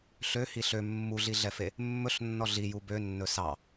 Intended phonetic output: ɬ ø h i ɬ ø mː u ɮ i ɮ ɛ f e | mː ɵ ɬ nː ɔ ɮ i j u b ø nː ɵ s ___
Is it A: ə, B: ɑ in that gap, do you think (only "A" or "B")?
B